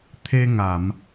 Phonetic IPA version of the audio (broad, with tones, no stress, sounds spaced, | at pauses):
t̪ʰ e˧ ŋ a˨˩˨ m